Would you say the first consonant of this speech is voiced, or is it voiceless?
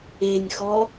voiced